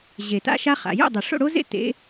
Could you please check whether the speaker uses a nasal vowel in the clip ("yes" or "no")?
no